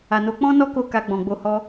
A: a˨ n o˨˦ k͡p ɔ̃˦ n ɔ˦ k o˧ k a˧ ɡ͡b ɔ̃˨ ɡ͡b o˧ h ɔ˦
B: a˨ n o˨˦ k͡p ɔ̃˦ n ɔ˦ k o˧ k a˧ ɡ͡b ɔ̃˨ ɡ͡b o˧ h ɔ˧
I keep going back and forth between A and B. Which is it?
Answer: A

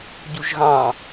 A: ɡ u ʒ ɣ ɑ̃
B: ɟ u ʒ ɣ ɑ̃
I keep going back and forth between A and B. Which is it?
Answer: B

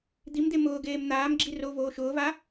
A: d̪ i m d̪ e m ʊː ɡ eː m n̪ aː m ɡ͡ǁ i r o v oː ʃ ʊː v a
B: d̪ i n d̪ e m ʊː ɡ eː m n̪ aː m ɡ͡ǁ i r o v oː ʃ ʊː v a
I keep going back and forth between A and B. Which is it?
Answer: A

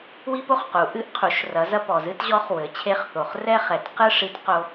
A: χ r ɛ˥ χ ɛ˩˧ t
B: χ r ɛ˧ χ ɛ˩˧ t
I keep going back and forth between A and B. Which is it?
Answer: A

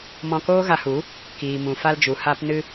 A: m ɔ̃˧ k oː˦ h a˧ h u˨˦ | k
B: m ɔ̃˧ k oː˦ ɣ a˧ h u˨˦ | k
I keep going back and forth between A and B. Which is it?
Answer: B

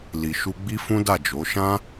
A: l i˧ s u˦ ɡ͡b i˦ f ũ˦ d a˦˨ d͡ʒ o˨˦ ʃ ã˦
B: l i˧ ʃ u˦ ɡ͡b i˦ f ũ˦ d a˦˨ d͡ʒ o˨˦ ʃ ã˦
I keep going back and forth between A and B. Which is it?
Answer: B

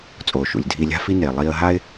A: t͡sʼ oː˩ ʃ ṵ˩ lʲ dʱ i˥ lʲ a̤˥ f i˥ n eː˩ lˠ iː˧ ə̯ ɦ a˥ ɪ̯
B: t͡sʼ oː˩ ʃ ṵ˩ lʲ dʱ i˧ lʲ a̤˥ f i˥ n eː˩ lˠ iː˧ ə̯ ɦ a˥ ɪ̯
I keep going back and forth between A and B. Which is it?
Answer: B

